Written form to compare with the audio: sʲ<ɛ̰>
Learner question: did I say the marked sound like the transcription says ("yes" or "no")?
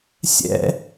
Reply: yes